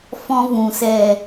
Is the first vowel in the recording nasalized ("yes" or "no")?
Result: yes